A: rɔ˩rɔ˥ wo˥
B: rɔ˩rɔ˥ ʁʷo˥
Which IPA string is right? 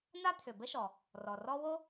A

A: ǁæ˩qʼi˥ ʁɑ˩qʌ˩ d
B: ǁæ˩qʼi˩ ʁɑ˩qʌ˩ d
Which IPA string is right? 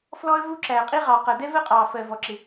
A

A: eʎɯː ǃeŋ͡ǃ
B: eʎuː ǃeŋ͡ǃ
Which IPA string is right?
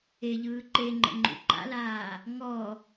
A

